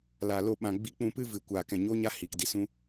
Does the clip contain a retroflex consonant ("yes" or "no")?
no